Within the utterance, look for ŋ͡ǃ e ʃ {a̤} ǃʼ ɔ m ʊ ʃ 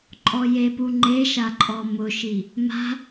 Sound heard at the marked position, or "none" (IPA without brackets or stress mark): a